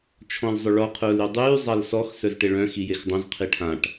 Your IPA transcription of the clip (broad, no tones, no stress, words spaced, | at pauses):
t͡ʃʰɔ̃lzˤʊɭɔ qʰʊːlydˤyː zˤalsɔx sœzʈeɭœ̃ xijexdˤõz qʰiʈʰãʈ